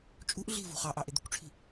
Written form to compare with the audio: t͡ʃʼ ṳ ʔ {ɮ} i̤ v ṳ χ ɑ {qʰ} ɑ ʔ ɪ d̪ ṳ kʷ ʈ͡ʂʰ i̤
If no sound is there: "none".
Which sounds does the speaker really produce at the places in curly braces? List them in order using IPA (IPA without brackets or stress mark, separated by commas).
ɮ, ʔ